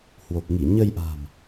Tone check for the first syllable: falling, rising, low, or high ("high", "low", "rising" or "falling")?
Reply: low